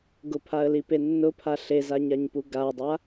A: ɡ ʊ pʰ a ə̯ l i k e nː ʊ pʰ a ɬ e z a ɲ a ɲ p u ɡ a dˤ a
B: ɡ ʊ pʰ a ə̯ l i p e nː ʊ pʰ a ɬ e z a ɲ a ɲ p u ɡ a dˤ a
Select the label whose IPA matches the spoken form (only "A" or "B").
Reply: B